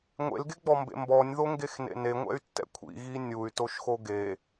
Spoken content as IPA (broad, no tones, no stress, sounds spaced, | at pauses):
ŋʷ ḛ l ɡ e ɡ͡b ɔ m b ḛ m b ɔ nʲ ð o ŋ ɡ e x n ḛ n e ŋʷ ɛ̰ y̯ tː ɛ̰ kʷʰ ḭ ɣ i nʲ u y̯ t o ʃ x o ɡ e